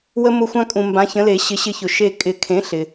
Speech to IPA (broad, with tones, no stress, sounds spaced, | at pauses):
w ə˧ m ʊ˧˩ xʷ ã˧ kʼ ũ˩ m b ã˩˥ ç ə̃˩˥ l e˨˩˦ ɕ ɪ˩˥ ɕ ɪ˧ ç ʊ˩ ʃ e˧˩ kʼ ɪ˨˩˦ kʰ ẽ˩˥ ɬ ɪ˩